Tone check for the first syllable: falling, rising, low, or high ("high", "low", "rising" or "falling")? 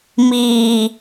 low